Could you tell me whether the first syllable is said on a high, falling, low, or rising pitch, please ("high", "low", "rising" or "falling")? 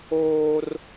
high